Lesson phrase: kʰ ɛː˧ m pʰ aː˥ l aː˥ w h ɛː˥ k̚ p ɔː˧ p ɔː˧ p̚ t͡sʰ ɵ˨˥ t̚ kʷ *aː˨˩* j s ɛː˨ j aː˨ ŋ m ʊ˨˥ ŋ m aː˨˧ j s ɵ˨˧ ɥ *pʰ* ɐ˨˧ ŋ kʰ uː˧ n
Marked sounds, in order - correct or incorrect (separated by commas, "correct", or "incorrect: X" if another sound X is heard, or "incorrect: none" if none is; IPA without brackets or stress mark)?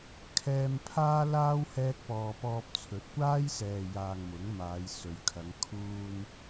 incorrect: aː˥, incorrect: kʰ